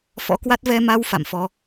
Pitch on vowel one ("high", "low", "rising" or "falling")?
rising